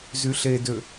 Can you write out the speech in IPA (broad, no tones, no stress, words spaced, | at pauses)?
zyɬedø